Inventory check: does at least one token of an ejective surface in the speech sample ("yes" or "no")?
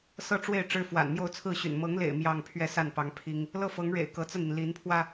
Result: no